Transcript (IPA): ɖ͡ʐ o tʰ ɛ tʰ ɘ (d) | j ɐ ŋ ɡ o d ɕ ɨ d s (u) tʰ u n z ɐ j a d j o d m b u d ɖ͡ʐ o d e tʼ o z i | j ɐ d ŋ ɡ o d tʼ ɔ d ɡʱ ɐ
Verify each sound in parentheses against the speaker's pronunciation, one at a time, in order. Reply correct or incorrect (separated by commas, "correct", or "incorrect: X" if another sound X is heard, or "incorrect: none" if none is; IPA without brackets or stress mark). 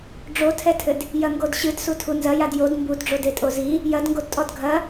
correct, correct